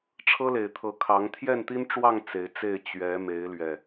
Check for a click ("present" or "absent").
absent